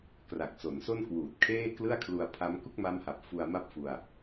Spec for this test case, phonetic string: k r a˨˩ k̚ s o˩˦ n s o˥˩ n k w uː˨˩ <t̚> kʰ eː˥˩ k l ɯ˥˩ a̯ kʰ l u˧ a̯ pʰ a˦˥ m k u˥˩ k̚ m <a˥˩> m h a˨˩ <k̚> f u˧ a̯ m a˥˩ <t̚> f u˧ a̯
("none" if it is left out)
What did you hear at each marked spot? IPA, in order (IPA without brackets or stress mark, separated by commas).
t̚, a˦˥, p̚, p̚